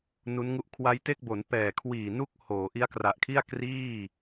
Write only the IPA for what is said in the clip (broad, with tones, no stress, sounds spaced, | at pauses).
n u˦˥ n ŋ u˥˩ ʔ kʰ w a˦˥ j t e˥˩ k̚ b o˩˦ n p ɛː˨˩ kʰ w iː˨˩ n u˥˩ k̚ h oː˩˦ ʔ i˦˥ a̯ k r a˨˩ ʔ kʰ i˥˩ a̯ k r iː˥˩